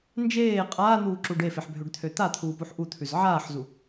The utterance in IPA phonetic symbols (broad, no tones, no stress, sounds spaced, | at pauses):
n d͡ʒ eː qʼ aː n̪ uː ǁ u ɖ e f e ħ bʱ ø ɖ t̪ʰ ø t̪ a t̪ʰ uː p u ħ ʔ u t̪ʰ ʉ z ʕ aː ħ z u